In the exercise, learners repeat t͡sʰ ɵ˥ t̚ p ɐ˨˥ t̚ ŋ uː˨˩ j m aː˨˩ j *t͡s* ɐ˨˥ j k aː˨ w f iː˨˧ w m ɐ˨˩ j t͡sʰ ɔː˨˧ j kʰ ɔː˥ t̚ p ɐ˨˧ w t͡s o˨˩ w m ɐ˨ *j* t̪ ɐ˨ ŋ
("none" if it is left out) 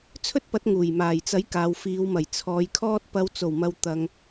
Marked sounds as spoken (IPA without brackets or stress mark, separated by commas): t͡s, w